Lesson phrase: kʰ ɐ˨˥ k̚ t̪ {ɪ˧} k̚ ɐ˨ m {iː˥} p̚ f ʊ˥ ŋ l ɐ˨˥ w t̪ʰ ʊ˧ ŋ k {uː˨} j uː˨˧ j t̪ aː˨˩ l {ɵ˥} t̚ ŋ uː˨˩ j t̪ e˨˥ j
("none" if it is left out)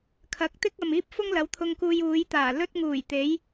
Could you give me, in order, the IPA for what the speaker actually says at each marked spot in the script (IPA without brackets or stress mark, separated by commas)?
ɪ˥, iː˥, uː˧, ɵ˥